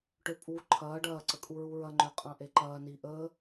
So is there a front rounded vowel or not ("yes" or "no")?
yes